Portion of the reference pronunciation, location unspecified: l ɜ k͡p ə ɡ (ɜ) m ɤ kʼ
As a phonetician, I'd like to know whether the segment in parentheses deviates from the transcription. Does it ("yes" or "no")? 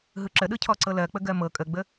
no